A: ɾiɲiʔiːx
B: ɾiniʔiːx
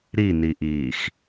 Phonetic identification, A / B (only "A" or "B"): B